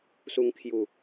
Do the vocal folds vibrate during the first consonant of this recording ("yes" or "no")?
no